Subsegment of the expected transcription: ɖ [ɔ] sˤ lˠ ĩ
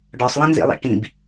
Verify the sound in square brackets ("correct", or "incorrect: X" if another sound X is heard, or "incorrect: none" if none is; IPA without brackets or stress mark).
correct